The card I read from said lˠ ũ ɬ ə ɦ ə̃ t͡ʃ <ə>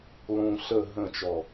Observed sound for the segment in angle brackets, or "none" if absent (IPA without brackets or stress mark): ɔ